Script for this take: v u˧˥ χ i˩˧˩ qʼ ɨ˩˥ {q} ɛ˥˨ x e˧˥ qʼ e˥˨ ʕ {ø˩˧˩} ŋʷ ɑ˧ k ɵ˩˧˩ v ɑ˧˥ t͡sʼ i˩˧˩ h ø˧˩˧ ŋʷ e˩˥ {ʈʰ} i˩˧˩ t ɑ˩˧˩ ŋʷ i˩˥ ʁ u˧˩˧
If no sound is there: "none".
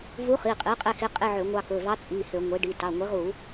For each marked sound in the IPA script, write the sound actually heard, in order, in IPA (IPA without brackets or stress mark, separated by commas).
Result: qʼ, ø˧˩˧, ɖ